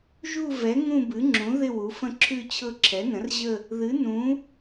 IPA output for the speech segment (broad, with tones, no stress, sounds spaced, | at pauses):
ʒ u˥˧ v ɛ˩˥ ŋ ũ˥˧ b ɨ˩˥ ŋ͡ǁ ũ˩˥ ð ɪ˥˧ w u˩˥ f ə̃˥˧ ǁʰ ʉ˥˧ t͡ɕʰ ɤ˥˧ ǁʰ ɛ˩˥ n ə̃˩˥ r ʑ ə˥˧ | ð ɨ˩˥ n ũ˩˥